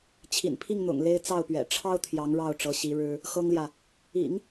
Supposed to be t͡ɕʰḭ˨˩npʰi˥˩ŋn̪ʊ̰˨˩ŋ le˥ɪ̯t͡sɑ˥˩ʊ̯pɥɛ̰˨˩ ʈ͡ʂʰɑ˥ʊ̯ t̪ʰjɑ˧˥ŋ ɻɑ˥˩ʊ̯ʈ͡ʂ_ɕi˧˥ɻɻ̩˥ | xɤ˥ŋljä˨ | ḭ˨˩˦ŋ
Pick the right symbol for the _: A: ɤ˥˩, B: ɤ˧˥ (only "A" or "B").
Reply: B